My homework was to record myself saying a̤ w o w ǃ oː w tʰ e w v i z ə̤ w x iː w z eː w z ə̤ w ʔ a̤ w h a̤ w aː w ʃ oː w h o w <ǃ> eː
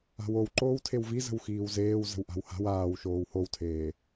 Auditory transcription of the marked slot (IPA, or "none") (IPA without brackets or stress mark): tʰ